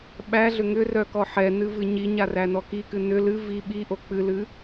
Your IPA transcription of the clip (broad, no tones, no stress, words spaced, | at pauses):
ɓæɮʏ ŋʏrœkɔ ħɛnɨvɨ ɲiɲarænɔ kikɨ nʏ lɨ vi ɓiʔo k͡pɨlɨ